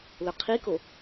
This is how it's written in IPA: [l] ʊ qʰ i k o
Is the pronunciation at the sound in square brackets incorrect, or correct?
correct